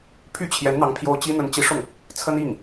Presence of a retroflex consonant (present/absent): present